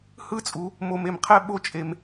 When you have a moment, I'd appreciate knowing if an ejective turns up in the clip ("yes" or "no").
yes